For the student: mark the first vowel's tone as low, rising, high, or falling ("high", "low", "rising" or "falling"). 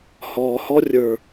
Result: low